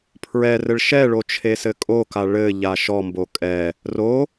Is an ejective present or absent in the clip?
present